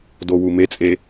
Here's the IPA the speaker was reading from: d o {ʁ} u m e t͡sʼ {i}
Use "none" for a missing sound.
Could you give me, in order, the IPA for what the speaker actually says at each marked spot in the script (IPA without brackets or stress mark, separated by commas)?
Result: w, e